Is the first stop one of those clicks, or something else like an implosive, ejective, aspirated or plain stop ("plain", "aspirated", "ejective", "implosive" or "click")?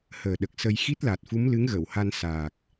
implosive